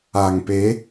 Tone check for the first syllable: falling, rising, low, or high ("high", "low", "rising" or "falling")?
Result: low